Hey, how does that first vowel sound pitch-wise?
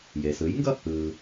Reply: low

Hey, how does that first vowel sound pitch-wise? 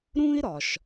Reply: high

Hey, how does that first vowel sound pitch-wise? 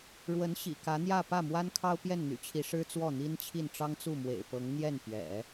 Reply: rising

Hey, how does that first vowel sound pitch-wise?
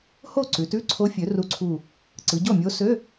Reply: falling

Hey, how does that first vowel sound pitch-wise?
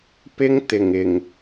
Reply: high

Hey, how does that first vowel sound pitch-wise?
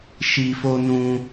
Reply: low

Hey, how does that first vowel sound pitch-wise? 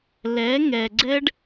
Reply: rising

